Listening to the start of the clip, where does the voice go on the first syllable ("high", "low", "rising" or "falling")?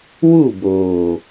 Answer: falling